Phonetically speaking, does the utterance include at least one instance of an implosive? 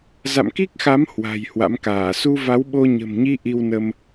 yes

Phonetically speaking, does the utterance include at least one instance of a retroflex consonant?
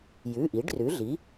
yes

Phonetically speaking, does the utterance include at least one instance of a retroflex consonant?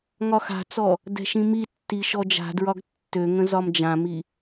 no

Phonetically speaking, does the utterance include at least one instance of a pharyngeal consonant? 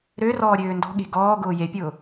no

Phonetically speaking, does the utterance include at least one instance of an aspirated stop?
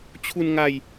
yes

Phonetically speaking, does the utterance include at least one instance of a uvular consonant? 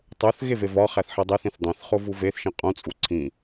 yes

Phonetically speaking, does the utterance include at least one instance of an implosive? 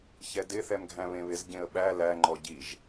yes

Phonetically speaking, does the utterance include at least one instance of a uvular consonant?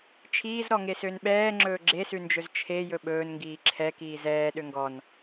no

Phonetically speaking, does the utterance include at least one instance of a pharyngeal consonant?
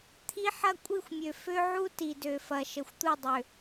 yes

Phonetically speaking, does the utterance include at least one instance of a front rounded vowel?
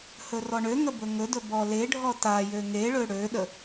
yes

